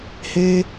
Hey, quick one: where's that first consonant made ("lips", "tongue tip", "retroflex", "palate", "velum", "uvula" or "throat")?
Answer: throat